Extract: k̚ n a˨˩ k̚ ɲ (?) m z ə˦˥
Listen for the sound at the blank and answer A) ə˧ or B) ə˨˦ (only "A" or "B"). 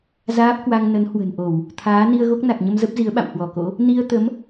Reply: A